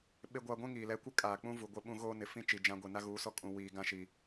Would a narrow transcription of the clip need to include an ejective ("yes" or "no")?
yes